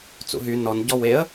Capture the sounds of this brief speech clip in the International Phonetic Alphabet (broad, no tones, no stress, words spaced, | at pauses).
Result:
t͡sṵɦy nɔn ɟɔweə̯